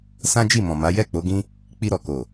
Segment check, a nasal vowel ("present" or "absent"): present